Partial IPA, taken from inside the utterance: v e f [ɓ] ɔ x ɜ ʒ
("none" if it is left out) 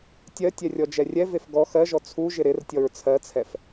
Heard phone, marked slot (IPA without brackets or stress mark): ɡ